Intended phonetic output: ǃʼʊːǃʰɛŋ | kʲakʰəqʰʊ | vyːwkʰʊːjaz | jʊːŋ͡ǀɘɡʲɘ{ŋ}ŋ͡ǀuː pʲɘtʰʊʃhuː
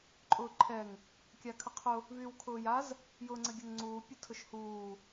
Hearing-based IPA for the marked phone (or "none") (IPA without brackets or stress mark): ŋ